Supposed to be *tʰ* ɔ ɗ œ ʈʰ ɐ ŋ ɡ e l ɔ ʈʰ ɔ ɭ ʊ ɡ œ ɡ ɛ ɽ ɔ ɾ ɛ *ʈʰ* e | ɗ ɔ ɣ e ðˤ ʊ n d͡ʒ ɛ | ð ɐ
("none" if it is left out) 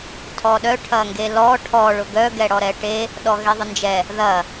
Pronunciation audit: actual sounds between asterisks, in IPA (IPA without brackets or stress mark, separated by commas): tʰ, ʈ